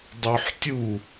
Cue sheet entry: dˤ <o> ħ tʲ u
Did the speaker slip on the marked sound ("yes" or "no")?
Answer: no